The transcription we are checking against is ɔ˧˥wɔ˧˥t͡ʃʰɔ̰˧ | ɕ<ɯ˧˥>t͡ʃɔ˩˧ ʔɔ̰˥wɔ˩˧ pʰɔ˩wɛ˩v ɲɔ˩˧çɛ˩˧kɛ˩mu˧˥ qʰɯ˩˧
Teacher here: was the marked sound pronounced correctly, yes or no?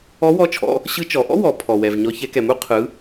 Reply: yes